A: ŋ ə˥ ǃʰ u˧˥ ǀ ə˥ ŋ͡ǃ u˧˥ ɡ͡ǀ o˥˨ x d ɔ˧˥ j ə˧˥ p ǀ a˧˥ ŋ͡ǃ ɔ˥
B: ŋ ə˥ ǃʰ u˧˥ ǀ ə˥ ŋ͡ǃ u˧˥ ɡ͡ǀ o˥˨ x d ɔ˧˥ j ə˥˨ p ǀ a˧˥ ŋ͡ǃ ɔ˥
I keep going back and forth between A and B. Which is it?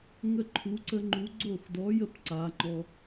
B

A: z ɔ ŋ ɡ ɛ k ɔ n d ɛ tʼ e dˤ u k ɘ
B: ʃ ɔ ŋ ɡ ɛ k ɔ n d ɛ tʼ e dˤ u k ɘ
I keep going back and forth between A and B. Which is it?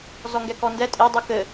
A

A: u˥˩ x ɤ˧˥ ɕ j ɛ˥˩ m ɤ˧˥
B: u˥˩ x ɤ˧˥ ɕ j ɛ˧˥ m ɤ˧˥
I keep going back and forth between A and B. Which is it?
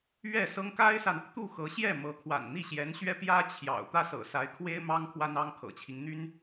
A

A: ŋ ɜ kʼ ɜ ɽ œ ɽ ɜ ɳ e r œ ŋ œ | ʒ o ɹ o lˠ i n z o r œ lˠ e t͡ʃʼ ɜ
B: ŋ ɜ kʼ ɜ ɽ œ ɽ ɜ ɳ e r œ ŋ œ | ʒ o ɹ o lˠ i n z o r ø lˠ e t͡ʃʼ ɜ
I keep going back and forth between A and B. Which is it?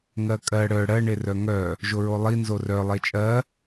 A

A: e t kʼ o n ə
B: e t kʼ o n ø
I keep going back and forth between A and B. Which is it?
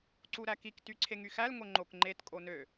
B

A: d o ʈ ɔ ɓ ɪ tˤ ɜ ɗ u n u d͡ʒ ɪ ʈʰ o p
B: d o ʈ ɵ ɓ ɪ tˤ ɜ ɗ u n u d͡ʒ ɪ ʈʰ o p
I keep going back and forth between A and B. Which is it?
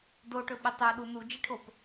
B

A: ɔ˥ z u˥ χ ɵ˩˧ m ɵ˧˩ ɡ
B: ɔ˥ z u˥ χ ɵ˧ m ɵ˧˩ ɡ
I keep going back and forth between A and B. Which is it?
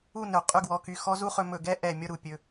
B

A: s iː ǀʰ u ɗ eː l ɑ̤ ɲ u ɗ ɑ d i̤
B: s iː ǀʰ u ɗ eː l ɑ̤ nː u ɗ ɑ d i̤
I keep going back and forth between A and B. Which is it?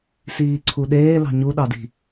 A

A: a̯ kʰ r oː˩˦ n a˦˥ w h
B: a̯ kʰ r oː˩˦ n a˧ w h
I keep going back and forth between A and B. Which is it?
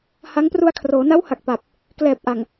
A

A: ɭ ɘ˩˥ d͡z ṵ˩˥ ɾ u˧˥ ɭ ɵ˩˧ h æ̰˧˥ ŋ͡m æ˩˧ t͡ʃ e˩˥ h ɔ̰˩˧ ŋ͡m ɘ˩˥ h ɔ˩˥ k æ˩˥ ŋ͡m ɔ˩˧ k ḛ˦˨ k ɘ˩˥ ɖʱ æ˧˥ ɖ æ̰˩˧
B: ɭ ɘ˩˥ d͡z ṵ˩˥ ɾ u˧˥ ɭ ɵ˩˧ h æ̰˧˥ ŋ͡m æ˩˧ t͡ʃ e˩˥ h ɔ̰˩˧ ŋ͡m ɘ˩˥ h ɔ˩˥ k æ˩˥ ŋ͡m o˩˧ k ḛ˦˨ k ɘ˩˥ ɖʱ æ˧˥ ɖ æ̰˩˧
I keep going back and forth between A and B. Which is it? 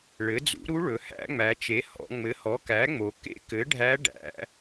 B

